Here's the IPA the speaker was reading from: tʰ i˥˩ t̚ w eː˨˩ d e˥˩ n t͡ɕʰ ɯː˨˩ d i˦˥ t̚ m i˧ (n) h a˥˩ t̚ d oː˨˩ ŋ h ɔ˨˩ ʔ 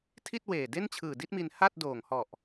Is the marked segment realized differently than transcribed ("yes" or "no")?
no